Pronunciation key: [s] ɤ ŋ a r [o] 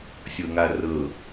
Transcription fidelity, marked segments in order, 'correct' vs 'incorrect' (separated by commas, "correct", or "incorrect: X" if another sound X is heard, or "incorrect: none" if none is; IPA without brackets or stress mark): incorrect: sʲ, incorrect: ɤ